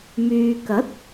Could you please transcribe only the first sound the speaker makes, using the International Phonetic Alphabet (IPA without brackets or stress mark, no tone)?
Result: m